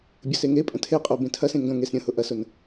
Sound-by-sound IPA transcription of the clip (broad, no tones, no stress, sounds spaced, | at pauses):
bʲ ʊ s e ŋ e pʼ ə̃ tʰ e qʼ o b ẽ tʰ ɐ s ẽ ŋ ɡ ɐ̃ ŋ e s ɾʲ ə̃ h ʊ ʔ ɐ s ʊ n